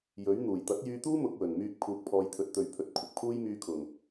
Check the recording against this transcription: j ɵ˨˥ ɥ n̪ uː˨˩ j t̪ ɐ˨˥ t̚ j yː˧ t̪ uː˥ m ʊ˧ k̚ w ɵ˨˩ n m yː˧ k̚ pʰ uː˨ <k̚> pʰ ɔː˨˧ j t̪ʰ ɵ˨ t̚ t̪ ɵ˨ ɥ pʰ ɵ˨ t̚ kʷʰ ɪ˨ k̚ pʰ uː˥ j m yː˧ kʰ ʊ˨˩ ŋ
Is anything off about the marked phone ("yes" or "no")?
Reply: no